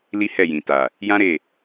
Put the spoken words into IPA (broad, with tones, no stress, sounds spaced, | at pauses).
l i˦ h ɛ˦˨ j ĩ˨ t a˨ | j ã˦ ɾ e˦˨